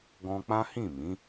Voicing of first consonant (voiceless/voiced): voiced